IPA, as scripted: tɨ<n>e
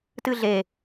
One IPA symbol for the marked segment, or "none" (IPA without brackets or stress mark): ɮ